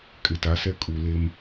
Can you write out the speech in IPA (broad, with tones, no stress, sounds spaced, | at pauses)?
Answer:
kʼ ɪ˨ t a˨˦ s ɛ˦ kʼ u˨ l e˦ m